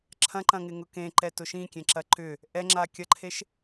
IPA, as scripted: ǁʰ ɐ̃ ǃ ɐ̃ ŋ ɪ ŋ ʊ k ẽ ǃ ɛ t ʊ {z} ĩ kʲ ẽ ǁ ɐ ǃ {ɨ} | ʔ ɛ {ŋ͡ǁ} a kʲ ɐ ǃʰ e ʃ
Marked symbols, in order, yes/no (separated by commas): no, no, yes